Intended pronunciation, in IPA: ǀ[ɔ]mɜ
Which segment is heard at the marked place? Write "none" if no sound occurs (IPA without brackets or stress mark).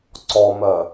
ɔ